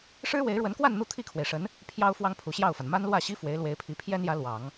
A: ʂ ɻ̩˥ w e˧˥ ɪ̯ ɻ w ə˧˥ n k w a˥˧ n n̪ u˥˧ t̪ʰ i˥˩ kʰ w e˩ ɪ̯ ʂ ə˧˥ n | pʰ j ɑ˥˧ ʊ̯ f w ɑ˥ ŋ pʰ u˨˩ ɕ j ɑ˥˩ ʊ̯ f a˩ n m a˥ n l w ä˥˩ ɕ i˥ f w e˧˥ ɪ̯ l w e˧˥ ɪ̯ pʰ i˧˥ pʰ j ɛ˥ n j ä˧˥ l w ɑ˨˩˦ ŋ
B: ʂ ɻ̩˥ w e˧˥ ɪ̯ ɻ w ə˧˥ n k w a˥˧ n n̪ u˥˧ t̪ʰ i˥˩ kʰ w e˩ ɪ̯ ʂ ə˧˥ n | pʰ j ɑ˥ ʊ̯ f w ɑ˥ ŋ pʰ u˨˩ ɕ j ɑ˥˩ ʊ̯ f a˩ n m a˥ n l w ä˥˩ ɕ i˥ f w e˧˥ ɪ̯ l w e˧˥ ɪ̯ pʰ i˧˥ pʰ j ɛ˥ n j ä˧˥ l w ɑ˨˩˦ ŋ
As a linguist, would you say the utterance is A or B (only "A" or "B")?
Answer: B